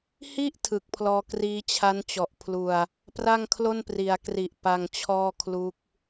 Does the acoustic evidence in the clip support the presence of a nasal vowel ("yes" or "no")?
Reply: no